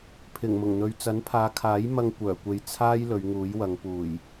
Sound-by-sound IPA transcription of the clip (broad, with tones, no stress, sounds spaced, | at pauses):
pʰ ɪ˨˩ ŋ m ʊ˨˩ ŋ n̪ ɵ˨ ɥ t͡s ɐ˨˥ n pʰ aː˨˧ kʰ aː˨˥ j m ɐ˧ ŋ kʷ œː˨˩ kʷ e˨ j t͡sʰ aː˥ j l ɵ˨˧ ɥ ŋ uː˨˥ j w ɐ˨˧ ŋ p uː˨˩ j